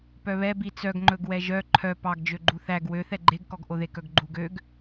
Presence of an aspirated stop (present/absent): present